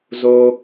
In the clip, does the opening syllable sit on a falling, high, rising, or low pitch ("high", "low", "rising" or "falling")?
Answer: high